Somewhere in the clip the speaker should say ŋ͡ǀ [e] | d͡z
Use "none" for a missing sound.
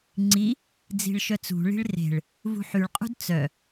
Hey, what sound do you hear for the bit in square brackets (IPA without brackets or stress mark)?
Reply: i